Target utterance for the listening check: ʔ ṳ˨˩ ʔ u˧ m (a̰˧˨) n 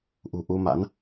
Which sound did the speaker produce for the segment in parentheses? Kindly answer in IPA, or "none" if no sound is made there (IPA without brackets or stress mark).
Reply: a̰˧˥